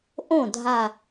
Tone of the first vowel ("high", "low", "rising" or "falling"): falling